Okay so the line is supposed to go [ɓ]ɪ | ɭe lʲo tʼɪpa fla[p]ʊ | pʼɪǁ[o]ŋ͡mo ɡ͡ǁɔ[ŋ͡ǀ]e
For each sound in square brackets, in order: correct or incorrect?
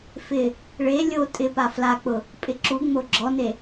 incorrect: f, incorrect: k͡p, incorrect: u, incorrect: n

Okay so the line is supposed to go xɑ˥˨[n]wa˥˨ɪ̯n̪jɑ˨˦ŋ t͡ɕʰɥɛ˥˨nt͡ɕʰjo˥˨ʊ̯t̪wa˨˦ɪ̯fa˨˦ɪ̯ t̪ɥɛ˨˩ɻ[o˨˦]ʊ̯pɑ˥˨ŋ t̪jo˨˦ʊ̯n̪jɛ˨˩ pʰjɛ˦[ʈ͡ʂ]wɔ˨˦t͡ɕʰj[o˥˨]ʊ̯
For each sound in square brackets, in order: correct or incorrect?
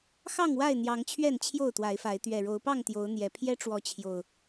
incorrect: ŋ, correct, correct, incorrect: o˨˩

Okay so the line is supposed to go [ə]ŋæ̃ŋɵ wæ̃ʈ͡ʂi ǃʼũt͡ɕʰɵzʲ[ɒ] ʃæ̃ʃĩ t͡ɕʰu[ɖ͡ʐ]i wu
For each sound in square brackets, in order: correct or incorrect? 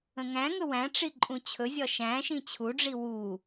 incorrect: ə̃, correct, correct

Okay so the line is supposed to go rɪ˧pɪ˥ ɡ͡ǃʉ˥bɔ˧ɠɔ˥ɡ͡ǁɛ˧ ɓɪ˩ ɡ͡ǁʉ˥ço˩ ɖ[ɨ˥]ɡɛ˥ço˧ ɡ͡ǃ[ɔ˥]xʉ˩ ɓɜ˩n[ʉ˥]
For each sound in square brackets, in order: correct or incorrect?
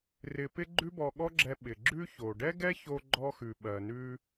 incorrect: ɛ˥, correct, incorrect: ʉ˧

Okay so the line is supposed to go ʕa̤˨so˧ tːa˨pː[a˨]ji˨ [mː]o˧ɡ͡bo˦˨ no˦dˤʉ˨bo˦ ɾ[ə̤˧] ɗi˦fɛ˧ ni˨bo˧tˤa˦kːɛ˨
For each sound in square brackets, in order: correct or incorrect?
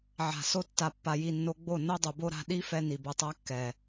correct, incorrect: nː, incorrect: a̤˧

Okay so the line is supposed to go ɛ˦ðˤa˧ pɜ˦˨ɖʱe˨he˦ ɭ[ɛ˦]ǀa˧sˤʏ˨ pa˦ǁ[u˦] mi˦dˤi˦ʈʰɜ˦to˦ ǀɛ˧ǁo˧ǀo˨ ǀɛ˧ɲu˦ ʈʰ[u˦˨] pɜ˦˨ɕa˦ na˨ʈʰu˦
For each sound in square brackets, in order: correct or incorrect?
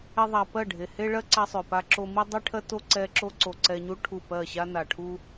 incorrect: ɜ˦, incorrect: o˦, correct

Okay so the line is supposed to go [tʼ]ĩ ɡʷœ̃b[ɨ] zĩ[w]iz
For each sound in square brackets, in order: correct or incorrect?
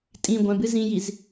correct, correct, incorrect: j

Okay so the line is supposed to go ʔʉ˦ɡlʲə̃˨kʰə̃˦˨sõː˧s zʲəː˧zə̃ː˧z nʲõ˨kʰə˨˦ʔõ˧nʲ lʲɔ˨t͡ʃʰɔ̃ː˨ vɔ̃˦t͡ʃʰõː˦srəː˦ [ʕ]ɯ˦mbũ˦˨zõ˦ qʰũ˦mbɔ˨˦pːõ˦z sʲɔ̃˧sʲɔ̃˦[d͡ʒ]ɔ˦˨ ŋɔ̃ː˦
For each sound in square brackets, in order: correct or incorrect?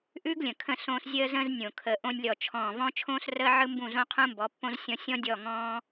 correct, incorrect: dʲ

